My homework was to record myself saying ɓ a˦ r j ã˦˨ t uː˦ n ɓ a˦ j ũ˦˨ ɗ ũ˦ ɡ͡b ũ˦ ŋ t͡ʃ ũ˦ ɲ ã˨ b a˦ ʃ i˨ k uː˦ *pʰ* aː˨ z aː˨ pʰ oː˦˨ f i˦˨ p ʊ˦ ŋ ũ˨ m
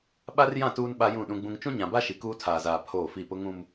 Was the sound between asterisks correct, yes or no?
no